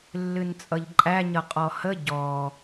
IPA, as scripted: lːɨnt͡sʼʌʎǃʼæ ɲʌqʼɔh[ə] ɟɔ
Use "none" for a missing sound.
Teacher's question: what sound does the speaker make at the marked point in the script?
ə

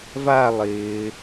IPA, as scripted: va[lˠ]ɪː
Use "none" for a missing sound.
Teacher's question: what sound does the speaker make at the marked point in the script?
lˠ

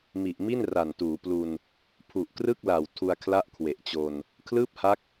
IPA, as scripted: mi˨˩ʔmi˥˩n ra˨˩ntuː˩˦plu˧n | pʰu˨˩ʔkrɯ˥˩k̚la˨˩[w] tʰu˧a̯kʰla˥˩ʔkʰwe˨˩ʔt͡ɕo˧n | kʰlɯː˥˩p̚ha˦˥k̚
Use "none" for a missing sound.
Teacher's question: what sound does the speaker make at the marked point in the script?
w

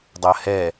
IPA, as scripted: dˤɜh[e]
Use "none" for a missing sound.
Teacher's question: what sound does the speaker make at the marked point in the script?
ɛ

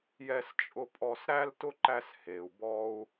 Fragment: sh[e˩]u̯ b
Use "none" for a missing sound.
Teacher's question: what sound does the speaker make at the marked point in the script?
e˩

